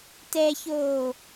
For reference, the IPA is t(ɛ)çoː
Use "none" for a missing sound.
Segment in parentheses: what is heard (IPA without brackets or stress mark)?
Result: ɛ